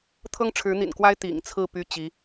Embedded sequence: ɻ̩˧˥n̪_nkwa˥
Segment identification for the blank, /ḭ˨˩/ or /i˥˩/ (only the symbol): ḭ˨˩